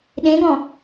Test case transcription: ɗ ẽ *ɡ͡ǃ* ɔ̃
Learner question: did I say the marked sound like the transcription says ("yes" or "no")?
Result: no